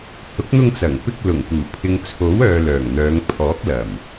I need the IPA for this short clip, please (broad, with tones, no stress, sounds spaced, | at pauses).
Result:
h ʊ˨˥ k̚ n̪ ʊ˧ ŋ t͡s ɐ˨˩ ŋ p ɪ˧ k̚ l ʊ˨˩ ŋ p uː˨˩ pʰ ɪ˨ ŋ t͡sʰ o˨˥ w œː˨ l œː˨˩ ŋ n̪ œː˨˧ ŋ pʰ ɔː˨˥ k̚ l ɐ˨˩ m